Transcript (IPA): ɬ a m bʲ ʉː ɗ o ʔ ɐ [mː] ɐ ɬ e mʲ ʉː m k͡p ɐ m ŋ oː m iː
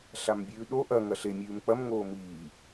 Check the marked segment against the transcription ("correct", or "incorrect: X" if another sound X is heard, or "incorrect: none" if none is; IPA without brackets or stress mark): incorrect: ŋ